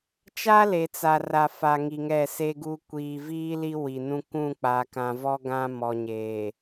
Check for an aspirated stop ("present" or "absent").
absent